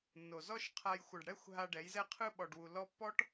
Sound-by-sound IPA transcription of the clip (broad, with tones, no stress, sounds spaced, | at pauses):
nː o˨ z ɔ˦ ʃ qʰ a˧ j xʷ ɤ˨ ɖ ɽ ɛ˦˨ xʷ ɦ a˧ ɖ ɛ˨˦ j z ɛ˦ qʰ ɯ˦ ɓ ɔ˨ ɖ w u˨ l ɔ˧ pː ɔ˦ ʈ